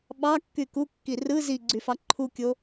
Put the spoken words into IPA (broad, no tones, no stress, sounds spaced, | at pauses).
ɓ ɑ kː y k u kː i r ɯ z i ɡ͡ǀ y f ɑ ǃʰ u kʲ o